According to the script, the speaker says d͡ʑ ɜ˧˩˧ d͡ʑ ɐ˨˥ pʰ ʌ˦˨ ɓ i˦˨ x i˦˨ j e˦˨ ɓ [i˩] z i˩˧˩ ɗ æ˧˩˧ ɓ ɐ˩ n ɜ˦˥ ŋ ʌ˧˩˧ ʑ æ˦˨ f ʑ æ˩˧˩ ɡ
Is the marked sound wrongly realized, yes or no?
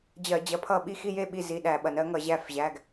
yes